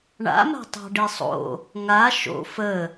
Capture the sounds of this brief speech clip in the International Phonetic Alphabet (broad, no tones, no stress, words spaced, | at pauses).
ɳa̰ma̤ tˤɑ̤ɖisˤo̰ | ŋa ʃo̰ fə